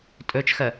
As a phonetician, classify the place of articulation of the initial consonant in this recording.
alveolar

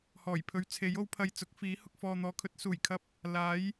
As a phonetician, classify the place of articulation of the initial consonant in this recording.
glottal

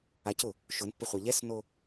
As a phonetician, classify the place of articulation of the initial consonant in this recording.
palatal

